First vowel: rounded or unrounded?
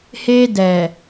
unrounded